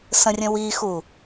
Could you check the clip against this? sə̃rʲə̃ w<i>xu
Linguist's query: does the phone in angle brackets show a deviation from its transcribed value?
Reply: no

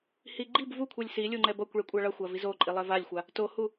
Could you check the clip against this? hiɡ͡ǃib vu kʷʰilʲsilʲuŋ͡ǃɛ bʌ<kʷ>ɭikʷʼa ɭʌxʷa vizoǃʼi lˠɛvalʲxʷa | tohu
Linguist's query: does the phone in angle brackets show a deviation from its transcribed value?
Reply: no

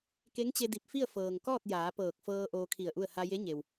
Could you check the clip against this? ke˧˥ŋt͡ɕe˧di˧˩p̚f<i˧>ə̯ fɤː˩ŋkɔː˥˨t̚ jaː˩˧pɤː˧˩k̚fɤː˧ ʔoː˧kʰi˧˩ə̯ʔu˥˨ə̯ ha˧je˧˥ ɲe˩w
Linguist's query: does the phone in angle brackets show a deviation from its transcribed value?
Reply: yes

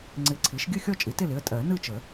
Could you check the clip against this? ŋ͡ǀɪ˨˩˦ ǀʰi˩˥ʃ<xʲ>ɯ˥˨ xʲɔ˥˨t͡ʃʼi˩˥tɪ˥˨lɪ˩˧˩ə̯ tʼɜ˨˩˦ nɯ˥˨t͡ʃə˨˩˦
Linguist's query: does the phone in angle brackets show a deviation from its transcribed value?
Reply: yes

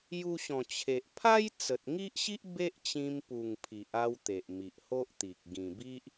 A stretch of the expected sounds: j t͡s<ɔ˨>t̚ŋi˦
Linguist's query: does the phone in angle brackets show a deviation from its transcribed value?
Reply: yes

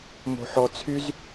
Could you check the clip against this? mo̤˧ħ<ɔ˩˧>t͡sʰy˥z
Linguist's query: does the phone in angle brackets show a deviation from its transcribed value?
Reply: yes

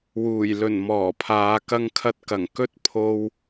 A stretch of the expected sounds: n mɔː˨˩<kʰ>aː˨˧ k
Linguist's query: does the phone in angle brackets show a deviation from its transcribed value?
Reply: yes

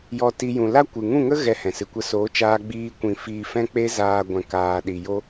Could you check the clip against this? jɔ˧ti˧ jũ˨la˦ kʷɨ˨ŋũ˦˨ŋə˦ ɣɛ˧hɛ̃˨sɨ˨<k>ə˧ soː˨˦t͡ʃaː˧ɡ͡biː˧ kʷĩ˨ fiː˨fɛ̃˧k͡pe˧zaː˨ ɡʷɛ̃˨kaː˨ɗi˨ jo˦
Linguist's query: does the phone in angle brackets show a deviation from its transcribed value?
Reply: yes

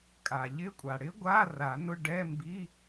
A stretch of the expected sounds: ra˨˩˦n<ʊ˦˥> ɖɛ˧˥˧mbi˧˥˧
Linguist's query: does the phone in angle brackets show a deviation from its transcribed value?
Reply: yes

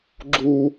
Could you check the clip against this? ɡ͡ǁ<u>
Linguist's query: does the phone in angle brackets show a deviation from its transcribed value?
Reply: no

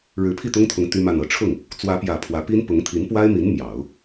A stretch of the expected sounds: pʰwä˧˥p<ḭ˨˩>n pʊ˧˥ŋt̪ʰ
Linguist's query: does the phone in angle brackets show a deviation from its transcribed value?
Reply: yes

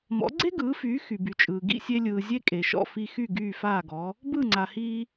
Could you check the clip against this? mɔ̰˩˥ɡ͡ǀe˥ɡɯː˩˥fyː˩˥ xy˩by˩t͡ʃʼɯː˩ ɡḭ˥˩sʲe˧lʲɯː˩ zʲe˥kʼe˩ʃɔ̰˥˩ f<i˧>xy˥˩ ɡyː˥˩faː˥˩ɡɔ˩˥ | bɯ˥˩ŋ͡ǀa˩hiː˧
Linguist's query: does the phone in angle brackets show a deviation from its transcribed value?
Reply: no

